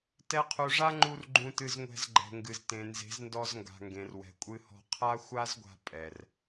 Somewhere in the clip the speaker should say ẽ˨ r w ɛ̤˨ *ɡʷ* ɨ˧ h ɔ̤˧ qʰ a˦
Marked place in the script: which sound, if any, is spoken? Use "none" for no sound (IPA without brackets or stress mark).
kʷʼ